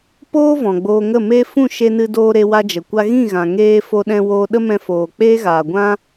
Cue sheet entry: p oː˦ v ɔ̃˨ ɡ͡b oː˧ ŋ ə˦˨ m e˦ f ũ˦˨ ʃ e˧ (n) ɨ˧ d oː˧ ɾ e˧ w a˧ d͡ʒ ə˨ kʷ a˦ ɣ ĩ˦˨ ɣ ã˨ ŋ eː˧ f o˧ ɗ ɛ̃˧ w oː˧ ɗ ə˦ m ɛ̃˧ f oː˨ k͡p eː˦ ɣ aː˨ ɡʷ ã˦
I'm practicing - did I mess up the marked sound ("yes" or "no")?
no